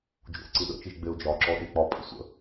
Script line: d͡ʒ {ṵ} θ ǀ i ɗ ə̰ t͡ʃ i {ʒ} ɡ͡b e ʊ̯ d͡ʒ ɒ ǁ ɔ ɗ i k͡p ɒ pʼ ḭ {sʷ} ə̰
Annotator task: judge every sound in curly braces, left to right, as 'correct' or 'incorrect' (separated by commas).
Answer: correct, correct, correct